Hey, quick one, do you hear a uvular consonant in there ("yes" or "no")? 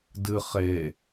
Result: yes